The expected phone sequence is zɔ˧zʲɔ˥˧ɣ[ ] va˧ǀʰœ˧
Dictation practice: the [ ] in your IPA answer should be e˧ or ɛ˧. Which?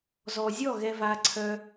ɛ˧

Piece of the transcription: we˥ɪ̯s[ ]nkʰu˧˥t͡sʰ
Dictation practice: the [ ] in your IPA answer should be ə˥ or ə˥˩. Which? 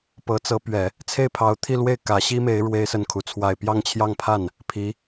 ə˥˩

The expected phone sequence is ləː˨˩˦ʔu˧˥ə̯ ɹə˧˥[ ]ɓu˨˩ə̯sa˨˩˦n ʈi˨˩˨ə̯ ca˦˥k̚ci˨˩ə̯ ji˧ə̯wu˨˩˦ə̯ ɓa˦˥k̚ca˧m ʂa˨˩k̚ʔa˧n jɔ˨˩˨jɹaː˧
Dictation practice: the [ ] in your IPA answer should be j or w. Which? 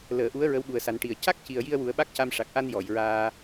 w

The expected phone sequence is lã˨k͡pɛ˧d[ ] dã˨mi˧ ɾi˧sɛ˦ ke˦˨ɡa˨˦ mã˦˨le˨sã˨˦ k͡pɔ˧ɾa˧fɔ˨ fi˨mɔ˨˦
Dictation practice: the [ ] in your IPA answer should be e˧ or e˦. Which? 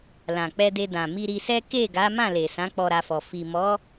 e˧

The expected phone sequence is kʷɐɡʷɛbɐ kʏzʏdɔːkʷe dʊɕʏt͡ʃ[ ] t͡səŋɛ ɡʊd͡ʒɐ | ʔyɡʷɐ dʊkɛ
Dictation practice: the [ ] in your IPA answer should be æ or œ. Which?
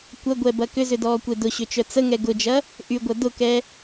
œ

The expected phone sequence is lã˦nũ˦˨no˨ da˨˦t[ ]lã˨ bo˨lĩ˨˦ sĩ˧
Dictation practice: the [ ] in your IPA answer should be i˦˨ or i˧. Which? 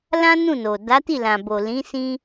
i˦˨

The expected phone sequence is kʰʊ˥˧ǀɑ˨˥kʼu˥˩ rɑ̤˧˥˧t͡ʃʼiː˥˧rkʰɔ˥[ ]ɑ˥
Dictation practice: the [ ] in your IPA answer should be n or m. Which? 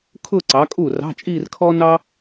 n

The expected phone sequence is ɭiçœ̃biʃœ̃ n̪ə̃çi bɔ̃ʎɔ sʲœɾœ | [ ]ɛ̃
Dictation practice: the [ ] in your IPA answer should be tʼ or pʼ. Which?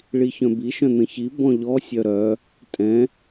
tʼ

